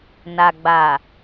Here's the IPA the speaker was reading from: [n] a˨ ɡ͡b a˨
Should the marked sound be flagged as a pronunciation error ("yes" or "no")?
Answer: no